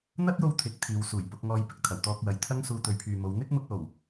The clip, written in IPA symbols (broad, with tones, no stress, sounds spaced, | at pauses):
n̪ ɐ˥ t̚ j o˥ w t̪ʰ ɪ˨˥ k̚ t̪ʰ iː˨ w s uː˨˩ j p ʊ˨˥ k̚ ŋ ɔː˧ j p ɪ˨ k̚ t̪ʰ ɐ˨˩ w t̪ ɔː˧ k̚ w ɐ˨ j t̪ʰ ɐ˥ ŋ s uː˧ t̪ ɵ˨˧ ɥ pʰ yː˨ m o˨˧ w n̪ ɪ˥ k̚ m ʊ˧ k̚ l o˨˩ w